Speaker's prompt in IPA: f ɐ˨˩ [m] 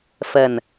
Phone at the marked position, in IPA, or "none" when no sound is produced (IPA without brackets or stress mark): n